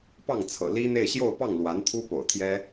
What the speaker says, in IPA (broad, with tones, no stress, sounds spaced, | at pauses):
p ɑ˥˩ ŋ t͡sʰ ɤ̰˨˩ l i˥ n̪ e˥˧ ɪ̯ ɕ j o˥˧ ʊ̯ p ɑ˥˩ ŋ l w a˧˥ n t̪ʰ u˥ p o̰˨˩ ʊ̯ t̪ʰ j ɛ˥